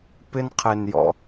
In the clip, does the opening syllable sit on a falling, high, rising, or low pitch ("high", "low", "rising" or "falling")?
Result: high